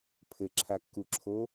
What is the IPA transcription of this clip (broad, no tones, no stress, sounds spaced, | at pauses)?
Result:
pʰ ɘ ǁʰ a kː u ǁʰ o